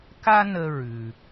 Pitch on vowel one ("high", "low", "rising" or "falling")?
high